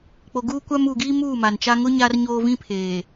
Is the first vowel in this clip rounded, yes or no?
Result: yes